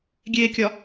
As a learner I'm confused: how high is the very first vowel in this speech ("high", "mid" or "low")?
mid